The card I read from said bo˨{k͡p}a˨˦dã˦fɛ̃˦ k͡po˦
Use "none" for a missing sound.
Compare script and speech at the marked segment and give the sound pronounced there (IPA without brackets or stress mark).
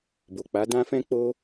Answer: k͡p